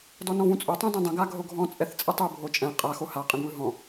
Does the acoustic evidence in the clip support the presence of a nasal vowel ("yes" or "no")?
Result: yes